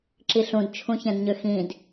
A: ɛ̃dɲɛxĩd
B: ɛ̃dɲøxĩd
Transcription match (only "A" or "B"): B